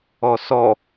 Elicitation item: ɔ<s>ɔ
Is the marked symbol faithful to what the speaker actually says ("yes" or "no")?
yes